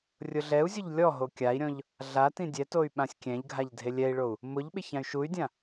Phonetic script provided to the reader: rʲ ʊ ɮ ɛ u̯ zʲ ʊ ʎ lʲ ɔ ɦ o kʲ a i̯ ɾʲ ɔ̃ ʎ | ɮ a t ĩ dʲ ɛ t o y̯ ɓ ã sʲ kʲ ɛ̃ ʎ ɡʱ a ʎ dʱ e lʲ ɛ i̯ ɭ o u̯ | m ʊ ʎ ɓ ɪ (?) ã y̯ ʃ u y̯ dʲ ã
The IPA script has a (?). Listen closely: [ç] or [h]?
ç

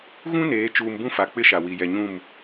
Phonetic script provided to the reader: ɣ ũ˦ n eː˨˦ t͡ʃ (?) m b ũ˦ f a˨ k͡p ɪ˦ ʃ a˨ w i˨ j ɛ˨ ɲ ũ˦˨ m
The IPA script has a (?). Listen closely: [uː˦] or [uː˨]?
uː˨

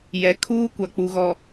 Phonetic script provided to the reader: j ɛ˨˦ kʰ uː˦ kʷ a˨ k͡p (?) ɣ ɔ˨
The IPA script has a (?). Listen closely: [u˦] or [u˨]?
u˨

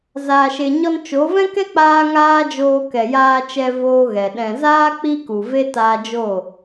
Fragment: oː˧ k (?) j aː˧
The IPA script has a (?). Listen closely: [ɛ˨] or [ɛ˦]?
ɛ˨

